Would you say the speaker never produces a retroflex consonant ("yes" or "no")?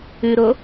yes